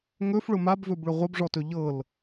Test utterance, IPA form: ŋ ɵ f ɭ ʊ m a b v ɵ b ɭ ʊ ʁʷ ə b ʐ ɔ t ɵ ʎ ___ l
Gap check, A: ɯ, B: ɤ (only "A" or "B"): B